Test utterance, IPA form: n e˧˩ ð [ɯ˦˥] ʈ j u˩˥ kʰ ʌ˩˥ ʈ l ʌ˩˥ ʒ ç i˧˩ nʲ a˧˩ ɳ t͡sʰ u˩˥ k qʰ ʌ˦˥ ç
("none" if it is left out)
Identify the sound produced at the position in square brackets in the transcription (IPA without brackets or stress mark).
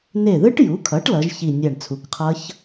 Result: ɯ˦˥